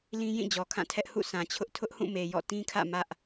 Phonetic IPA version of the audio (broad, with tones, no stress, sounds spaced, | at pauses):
l ĩ˦ j ĩ˦˨ d͡ʑ ɔ˨ kʰ ã˦˨ tʰ ɛ˦ ʔ h ṵ˦˨ s ã˨ t͡ɕʰ ʊ˦ ʔ tʰ ʊ˦ ʔ h ũ˦˨ m e˨ j ɔ̰˦˨ t ĩ˦ kʰ ä̰˦˨ m ä˦ ʔ